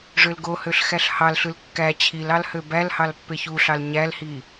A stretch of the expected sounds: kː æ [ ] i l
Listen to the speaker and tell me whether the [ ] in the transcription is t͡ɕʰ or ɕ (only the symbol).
t͡ɕʰ